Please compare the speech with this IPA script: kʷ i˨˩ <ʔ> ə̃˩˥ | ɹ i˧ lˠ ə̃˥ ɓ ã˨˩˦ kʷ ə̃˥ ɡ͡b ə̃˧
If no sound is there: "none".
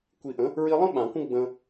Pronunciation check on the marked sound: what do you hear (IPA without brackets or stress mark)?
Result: ʔ